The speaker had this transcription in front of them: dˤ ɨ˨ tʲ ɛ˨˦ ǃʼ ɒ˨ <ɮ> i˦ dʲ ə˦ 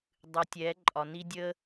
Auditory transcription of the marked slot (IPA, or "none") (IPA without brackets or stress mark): n